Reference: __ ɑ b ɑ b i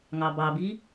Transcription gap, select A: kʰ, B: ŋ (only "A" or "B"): B